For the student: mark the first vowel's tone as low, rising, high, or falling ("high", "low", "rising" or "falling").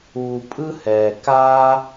low